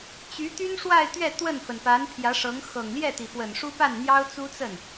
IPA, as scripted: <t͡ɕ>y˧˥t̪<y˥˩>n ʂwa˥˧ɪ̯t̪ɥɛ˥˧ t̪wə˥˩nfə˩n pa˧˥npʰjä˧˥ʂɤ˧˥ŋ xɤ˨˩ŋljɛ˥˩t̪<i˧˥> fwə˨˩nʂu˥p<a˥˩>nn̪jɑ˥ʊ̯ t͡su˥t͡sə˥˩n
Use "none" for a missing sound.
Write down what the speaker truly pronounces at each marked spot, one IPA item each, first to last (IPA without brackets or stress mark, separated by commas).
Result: t͡ɕ, y˥, i˩, a˥˩